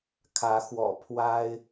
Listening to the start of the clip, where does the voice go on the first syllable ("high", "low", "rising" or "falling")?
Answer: rising